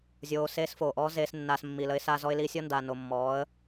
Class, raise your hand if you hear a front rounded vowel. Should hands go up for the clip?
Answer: no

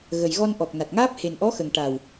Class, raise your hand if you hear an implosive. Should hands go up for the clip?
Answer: no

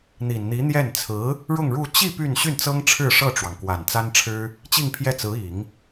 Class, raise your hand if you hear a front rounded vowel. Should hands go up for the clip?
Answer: yes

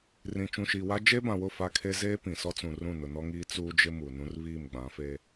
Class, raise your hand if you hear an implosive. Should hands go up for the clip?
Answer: no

